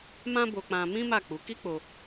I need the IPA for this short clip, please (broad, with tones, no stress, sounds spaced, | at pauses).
m ã˦ b o˧ k͡p ã˧ m ĩ˦ m a˦˨ k͡p u˨˦ k i˦ k͡p o˧